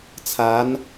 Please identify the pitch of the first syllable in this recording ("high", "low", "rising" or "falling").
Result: rising